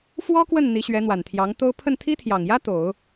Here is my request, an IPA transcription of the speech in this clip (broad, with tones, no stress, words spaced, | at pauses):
fwɔ˥kwə˥˩n n̪i˧˥ɕɥɛ˧˥n̪wa˨˩nt̪ʰjɑ˧˥ŋ t̪o˥ʊ̯ pʰə˥˩nt̪ʰi˥t̪ʰjɑ˨˩ŋjä˥ t̪o˨˩˦ʊ̯